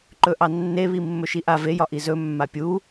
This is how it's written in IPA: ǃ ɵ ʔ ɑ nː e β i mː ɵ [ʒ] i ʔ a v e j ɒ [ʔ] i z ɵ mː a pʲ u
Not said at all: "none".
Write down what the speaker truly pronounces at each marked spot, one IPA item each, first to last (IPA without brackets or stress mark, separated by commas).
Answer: ʃ, ʔ